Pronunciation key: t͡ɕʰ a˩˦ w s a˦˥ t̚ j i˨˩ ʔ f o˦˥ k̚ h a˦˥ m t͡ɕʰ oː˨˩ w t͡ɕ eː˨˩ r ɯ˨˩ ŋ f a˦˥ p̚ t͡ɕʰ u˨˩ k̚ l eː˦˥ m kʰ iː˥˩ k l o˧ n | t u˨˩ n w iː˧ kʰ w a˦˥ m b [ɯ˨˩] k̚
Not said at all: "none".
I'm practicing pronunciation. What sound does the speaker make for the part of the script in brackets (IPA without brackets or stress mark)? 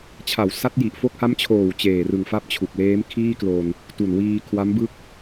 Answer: ɯ˥˩